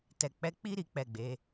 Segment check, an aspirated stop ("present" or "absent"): absent